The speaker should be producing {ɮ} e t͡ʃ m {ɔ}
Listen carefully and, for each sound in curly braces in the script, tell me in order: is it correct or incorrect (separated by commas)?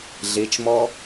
correct, correct